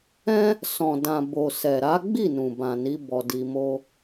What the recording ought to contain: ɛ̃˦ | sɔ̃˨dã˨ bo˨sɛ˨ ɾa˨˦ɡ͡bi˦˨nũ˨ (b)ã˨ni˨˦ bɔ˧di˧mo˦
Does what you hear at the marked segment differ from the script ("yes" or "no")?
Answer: no